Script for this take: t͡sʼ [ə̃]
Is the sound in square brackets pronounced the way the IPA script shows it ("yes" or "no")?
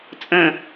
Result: yes